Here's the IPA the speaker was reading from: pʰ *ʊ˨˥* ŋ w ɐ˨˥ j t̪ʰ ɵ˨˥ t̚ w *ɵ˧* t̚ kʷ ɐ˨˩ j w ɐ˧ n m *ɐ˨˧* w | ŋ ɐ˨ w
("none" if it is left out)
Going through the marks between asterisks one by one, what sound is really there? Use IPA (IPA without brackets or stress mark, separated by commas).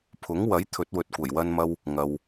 ʊ˨˥, ɵ˨, ɐ˧